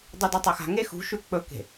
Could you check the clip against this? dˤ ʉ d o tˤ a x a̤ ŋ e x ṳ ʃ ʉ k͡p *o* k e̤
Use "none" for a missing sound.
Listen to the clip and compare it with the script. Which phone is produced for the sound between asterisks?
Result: ɵ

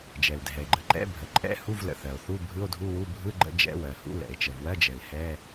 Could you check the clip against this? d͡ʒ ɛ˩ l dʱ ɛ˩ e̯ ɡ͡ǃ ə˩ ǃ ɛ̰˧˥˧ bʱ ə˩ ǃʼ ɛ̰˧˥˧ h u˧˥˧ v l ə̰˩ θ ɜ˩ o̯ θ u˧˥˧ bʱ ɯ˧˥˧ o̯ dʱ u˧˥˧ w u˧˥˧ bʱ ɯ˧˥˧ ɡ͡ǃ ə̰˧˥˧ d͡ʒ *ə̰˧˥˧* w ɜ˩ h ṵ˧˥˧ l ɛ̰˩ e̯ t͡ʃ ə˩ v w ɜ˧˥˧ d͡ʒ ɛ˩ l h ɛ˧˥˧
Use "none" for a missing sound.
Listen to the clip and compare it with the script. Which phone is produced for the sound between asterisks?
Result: ɛ̰˧˥˧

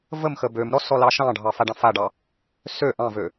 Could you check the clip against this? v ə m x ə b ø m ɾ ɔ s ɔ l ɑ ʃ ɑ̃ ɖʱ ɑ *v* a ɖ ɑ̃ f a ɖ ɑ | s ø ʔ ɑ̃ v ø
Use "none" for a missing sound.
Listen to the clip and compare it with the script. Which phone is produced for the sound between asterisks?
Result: f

